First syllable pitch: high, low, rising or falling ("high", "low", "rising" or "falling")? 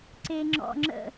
low